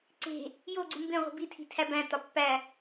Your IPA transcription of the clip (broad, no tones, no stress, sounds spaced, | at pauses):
ǀ e̤ | j o ɡ͡ǀ u m b ẽ ʁʷ i̤ b i tʰ i̤ tʰ æ b æ̃ t ɒ pː æ